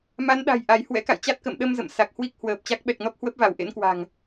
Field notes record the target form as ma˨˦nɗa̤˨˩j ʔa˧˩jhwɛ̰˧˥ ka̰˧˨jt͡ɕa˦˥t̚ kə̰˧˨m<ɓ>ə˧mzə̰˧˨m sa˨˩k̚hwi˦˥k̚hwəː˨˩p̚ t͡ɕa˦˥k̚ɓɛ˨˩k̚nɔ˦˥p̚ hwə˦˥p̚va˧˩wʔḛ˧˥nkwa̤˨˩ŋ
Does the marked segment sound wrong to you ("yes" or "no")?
yes